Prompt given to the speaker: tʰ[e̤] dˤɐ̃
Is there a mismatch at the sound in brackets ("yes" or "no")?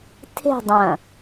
no